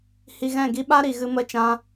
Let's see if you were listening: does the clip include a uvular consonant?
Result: no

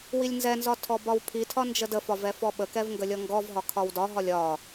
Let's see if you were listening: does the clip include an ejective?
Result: no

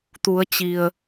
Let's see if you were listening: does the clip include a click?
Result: no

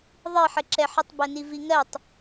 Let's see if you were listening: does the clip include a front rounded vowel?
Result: no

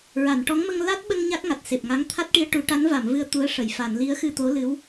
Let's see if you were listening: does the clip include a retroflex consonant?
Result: yes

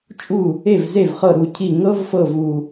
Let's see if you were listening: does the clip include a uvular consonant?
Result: yes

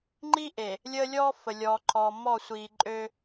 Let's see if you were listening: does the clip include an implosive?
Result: no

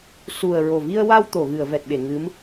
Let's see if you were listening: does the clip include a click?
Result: no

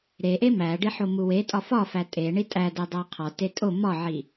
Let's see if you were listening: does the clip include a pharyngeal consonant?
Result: yes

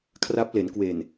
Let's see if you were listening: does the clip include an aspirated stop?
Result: yes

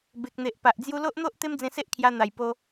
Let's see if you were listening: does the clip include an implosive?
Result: no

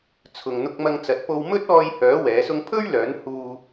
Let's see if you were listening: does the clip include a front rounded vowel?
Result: yes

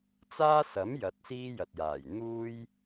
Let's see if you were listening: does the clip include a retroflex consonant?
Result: no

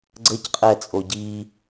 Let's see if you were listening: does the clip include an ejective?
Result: yes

